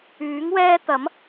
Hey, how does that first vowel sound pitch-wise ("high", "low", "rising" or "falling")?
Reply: rising